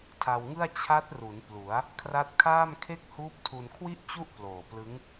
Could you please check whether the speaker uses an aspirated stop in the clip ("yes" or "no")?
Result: yes